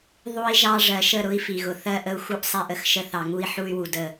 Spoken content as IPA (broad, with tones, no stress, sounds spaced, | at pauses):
ðˤ u˦ i̯ ʒ ɑ˦ ʐ ɜ˨ ʃ ə˦˨ ɾ ʊ˦ i̯ f i˨ ɣ ʊ˨ θ ɜ˦ ʔ ə˦ u̯ x u˦ ʔ sˤ ɛ˦ ʔ ə˦ x ʃ ə˦ θ ɑ˨ ŋ u˦ i̯ ħ u˦ y̯ w u˨ d ə˦˨